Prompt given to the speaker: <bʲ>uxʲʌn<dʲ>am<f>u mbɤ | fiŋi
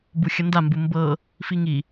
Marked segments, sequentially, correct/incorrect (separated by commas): incorrect, incorrect, incorrect